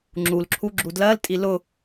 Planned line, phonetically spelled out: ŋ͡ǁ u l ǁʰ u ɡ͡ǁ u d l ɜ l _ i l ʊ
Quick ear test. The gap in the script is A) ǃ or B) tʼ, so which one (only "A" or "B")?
B